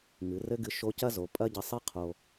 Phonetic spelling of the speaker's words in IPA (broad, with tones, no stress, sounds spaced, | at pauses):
ŋ ɨ˩˧ r ɘ˥ ɡ ɨ˧ ʃ o˧˥ c ɐ˥ z o˩˧ pʼ ɐ˥ ɟ ɘ˧ sˤ ɨ˥ qʰ o˧